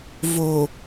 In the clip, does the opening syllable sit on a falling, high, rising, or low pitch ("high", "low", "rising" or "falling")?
low